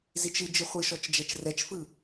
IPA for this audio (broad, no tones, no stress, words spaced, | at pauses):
zit͡ʃɨ d͡ʒɨχʷɨʃɔt͡ʃ d͡ʒɛt͡ʃrɛt͡ʃfɯ